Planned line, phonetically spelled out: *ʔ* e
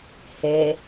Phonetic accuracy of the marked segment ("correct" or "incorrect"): incorrect